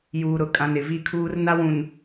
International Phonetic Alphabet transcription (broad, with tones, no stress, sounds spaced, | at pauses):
j uː˨ ɾ ʊ˨ kʼ ã˨ n ɪ˨ v i˦ kʰ uː˦ r n a˦ w ũ˨ n